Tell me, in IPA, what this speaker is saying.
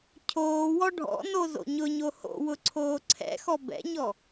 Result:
cʰ oː w ɔ ɖʱ ɔ̰ n o z o̰ ɲ ʊ ɲ o h o̰ w ʊ ǀʰ oː ǀʰ ɛ̰ x ɔ b ɛ̰ ɲ ɔ

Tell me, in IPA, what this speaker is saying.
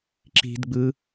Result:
ǁ i̤ d ɡ͡b ɯ

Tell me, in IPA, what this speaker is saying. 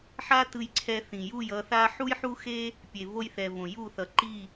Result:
ħ a˦ t ɯ˦ j ǀʰ ɛ˦ θ ĩ˨ j u˦˨ j ʌ˧ θ a˦ ħ u˦ j ħ u˦ x e˦ | pʲ e˨ v o˦ j θ ɛ˨ v õ˨ j u˦˨ θ ʌ˨ ǃ i˦˨

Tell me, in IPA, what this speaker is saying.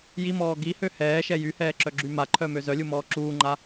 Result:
j i m ɔː ɡ i h ø h ɛː ʃ ɛ j y h ɛː ǁ œ ɡ͡ǁ y m a ǃʰ œ m ø z œ lʲ u m ɔː ǁ uː ŋ͡ǃ a

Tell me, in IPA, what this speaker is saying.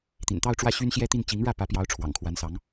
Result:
t̪ ḭ˨˩ n t̪ ɑ˥˧ ʊ̯ ʈ͡ʂ w ä˥˩ ɕ y˥ n ɕ j ɛ˥ t̪ i˥˩ n t͡ɕ i˧˥ ŋ ɻ ä˥˩ p ä˧˥ p j ɑ˧˥ ʊ̯ ʈ͡ʂʰ w ɑ̰˨˩ ŋ kʰ w a˧˥ n s ɑ˧˥ ŋ

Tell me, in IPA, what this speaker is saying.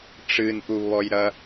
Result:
ʈ͡ʂ ɨ n ʔ u β ɔ j ɾ ɐ

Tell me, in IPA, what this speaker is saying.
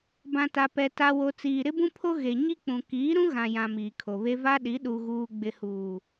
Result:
b ã˨ t a˨ p ɛ˨ t a˨ w o˨ t͡s iː˨ ɾ ɪ˦ b ũ˦ pʰ o˦ ɣ e˨ ɲ i˦ k͡p ũ˨ k iː˨˦ ɾ ũ˦ ɣ ã˨ j ã˨ m iː˨ kʰ o˨ β e˦ v a˦ ɗ i˨˦ ɗ u˨ ɣ uː˨ ɡ͡b ɪ˨ h uː˨

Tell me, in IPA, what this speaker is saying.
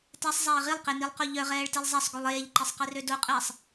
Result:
t ɛ sˤ zˤ ɛː ʁ i lˠ q e n i lˠ q o ʎ œ ʁ ɛː ɭ t i lˠ zˤ ɛ sˤ ɡ u lˠ eː ʎ ǃ i sˤ q i r ø d o qʼ ɛː sˤ

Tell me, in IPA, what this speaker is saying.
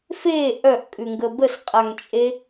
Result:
f e ʔ œ ʔ kʼ ʉ ŋ ɡ ə b ə s qʼ a ŋ t͡ʃʼ e

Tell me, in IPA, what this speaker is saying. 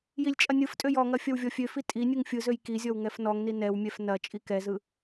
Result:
j i lʲ t͡ʃʼ ɐ nʲ ɯ f tʼ ø j ɔ ŋ ɐ fʲ ɐ w vʲ ɔ fʲ ø f i tʼ i nʲ ɯ ŋ fʲ ɯ z ø j k i zʲ ɔ w ŋ ɛ f n ɔ ŋ n i n ɛ w mʲ ɛ f n ɐ t͡ʃʼ i k ɛ z ɯ

